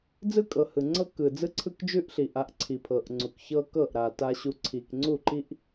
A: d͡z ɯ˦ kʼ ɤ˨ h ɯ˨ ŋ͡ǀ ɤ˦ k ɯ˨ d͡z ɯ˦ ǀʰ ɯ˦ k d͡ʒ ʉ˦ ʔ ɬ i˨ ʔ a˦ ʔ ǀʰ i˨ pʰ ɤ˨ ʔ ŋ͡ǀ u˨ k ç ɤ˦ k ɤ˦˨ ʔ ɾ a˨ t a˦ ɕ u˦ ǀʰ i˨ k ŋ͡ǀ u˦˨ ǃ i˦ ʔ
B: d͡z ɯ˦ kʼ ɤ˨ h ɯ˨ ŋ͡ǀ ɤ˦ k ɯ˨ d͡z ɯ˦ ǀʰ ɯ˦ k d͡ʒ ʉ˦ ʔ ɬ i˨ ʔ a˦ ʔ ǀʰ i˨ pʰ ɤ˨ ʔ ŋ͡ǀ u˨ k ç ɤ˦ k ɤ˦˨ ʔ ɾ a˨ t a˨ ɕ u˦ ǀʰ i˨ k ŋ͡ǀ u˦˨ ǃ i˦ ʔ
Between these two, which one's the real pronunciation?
A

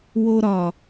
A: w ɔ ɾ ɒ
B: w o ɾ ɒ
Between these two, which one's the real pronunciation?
B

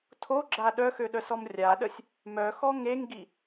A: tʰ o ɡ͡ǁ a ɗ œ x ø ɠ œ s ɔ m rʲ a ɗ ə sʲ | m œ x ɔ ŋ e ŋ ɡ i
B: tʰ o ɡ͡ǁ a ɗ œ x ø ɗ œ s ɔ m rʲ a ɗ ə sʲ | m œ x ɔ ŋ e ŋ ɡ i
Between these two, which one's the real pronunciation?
B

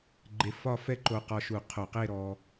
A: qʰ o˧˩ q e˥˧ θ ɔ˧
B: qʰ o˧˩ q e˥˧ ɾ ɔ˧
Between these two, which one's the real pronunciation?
B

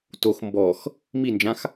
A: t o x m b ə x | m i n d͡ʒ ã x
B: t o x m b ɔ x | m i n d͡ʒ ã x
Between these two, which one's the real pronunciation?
B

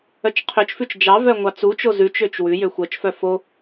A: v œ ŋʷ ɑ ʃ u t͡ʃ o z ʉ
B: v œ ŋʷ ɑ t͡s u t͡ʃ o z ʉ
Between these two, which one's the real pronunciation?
B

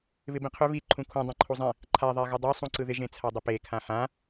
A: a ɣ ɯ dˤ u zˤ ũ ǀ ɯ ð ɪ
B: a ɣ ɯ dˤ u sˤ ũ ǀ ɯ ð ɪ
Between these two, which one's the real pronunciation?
B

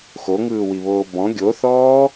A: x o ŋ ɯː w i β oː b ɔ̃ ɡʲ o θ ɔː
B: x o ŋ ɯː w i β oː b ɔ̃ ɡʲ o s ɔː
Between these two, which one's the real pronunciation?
A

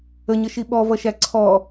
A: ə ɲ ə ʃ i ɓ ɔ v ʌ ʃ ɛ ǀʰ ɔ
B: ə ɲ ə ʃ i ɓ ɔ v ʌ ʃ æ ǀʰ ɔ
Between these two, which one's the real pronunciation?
B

